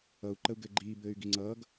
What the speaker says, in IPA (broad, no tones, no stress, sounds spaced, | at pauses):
ʌ u̯ ǃ ə u̯ ɡ ɘː ɡ͡ǃ iː b ɘː y̯ ɡ i ŋ͡ǀ ʌː ɡ